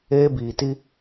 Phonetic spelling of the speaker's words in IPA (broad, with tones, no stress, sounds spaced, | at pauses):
eː˦ b iː˨ t i˦